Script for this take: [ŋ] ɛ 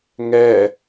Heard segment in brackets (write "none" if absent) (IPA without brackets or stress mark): ŋ